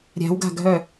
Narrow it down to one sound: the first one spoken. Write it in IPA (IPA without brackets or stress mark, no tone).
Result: ɾʲ